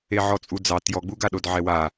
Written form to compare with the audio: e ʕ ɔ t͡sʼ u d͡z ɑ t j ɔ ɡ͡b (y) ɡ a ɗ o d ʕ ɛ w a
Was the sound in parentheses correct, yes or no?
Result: no